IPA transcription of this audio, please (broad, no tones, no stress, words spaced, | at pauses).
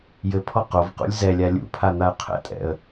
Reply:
jɘpʰɔ qovqṵlʲ zɛlʲa lʲṵpʰan̪aə̯ qʰɛ̰tʼɛ̰ə̯